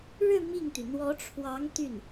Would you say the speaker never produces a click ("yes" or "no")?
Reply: yes